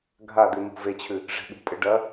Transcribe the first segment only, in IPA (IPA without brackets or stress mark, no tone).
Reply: ɡʱ